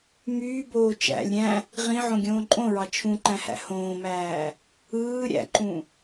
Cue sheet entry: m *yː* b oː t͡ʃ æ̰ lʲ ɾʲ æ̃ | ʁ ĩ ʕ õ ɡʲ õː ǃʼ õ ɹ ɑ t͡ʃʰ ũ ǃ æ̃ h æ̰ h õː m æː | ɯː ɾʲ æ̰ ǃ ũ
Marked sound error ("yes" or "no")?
no